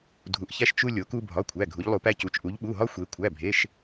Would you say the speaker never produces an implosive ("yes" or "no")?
no